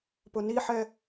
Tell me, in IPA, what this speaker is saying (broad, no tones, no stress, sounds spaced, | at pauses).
p ʊ n i ħ ɛ